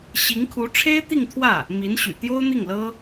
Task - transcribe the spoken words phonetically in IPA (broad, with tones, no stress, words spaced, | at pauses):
ɕi˧˥ŋkʰu˧˥ ʈ͡ʂʰe˥ɪ̯t̪i˥˧ŋt̪ʰwä˥˩ | mi˧˥nɕy̰˨˩ t̪jo˥ʊ̯n̪i˥˩ŋlɤ˥